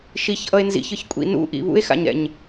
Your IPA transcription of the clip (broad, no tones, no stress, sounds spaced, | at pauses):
ʃ i ç ʔ ʌ e̯ n z ḭ ç ɯ ç kʷʼ ḭ n ṵ ʔ ḭ β ṵ e̯ x a̰ ɲ ɾ ɛ̰ ɲ